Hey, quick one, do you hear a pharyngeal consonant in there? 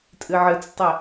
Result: yes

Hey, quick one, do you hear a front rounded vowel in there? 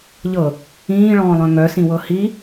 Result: yes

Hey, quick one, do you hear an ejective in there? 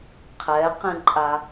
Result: yes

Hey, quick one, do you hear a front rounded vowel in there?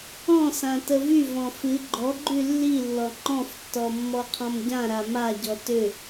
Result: yes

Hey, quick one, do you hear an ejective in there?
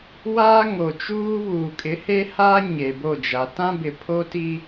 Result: yes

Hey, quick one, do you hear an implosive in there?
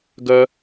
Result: no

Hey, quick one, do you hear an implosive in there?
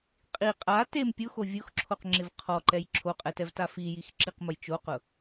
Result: no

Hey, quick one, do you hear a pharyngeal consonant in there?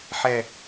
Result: yes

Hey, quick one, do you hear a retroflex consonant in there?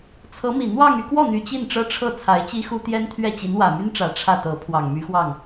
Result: yes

